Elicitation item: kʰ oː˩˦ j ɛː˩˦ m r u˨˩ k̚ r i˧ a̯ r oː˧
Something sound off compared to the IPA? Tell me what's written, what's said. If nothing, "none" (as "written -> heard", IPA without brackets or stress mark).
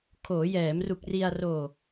none